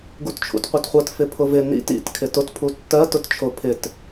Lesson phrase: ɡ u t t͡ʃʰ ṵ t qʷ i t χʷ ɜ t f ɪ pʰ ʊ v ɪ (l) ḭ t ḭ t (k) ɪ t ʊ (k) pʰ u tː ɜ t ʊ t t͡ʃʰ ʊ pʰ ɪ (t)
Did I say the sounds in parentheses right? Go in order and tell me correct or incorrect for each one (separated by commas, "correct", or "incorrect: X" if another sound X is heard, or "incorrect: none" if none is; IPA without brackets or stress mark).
incorrect: n, incorrect: kʰ, incorrect: t, correct